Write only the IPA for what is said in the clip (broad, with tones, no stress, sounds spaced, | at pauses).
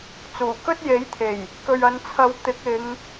t͡s uː˨˩ k ɵ˥ t̚ j e˨˥ j t̪ʰ e˨˩ j | k ɵ˨ ɥ ɐ˨˧ n t͡sʰ ɐ˨˧ w t̪ ɪ˨˥ k̚ ɪ˨˧ ŋ